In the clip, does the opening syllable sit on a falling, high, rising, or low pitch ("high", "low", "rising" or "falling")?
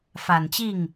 low